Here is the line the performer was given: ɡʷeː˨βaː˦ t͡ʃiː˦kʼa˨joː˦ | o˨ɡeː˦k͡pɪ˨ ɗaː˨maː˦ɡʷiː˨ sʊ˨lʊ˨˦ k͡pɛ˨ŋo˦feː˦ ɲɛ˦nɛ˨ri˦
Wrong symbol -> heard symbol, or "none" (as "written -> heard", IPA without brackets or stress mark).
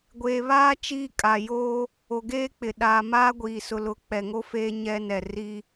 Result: none